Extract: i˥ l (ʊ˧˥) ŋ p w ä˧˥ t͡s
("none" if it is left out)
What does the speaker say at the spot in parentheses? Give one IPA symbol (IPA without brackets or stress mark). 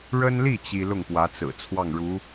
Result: ʊ˥˩